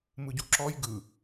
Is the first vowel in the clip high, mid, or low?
high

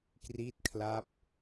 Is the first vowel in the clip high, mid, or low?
high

